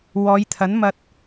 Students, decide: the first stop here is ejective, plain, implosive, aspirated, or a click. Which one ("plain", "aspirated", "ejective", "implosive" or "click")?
aspirated